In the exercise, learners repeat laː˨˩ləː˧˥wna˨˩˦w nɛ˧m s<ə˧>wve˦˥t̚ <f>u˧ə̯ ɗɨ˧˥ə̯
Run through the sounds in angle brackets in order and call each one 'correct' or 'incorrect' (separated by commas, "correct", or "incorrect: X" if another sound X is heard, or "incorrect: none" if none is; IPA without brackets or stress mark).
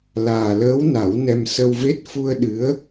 correct, correct